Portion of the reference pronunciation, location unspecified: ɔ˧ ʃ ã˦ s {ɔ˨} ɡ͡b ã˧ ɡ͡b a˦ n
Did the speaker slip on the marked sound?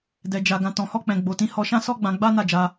yes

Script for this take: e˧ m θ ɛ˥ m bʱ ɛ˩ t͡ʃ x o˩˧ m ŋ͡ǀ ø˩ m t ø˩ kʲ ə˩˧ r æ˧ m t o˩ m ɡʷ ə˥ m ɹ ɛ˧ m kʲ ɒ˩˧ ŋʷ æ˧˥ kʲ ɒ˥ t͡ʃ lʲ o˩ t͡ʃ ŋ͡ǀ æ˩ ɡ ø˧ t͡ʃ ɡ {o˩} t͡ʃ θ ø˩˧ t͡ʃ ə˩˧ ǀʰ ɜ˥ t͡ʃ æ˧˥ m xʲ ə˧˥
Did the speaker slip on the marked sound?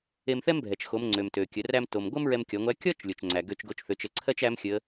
yes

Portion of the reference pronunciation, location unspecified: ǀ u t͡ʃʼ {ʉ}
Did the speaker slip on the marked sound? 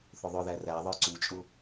yes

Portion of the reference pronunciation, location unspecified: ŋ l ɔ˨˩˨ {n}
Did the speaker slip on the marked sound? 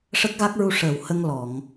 yes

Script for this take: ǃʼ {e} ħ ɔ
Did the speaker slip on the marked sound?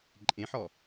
yes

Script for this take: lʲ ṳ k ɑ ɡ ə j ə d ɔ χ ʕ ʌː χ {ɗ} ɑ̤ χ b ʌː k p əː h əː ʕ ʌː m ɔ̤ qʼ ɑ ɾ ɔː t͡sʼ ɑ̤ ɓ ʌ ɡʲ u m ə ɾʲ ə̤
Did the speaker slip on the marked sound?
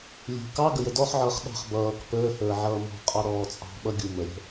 no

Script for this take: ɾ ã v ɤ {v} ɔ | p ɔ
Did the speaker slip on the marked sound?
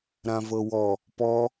yes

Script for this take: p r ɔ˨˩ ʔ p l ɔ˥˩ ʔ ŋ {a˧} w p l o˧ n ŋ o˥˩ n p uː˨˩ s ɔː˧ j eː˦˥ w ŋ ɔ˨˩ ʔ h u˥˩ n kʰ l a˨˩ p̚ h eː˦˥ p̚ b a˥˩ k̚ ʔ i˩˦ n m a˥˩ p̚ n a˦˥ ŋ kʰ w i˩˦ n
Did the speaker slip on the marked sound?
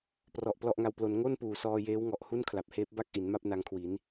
no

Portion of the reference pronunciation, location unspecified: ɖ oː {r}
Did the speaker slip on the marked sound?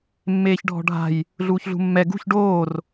no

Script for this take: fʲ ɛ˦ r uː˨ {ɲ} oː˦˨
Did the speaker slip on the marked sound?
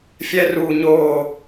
no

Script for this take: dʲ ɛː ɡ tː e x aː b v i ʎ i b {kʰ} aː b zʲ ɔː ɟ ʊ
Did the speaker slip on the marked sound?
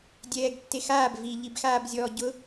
yes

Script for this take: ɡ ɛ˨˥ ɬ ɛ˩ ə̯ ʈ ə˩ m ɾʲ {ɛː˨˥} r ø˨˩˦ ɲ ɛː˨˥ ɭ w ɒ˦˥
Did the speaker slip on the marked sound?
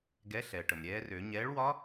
no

